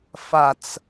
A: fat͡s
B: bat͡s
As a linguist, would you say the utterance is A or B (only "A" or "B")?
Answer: A